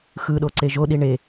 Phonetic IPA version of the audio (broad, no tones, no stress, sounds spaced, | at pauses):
x ɯ ɗ o ǀ e ʒ o ɗ i ɳ e